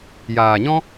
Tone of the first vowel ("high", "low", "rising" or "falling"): low